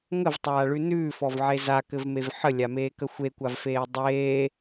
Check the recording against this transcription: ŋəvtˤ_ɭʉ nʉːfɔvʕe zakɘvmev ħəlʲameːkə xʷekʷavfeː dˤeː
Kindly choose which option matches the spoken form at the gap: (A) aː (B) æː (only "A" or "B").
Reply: A